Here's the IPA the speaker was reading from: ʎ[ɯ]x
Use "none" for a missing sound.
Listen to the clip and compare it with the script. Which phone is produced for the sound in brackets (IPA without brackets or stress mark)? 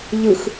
ɯ